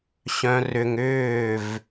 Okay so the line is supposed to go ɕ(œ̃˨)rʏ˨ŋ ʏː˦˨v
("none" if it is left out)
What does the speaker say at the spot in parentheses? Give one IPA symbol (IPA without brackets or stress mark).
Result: œ̃˨